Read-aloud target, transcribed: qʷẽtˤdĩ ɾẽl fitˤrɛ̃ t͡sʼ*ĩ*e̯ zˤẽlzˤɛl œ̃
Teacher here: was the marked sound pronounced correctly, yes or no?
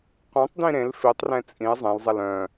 yes